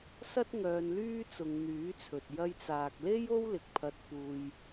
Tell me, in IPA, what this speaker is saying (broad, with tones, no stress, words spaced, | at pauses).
sɐ˥t̚ ŋœː˧nlyː˥t͡sʊ˨˧ŋ n̪yː˨˥t͡sʰɵ˨t̚ jɐ˧jt͡saː˨k̚le˥j o˥wlɪ˨k̚ pʰɐ˧t̚fuː˧j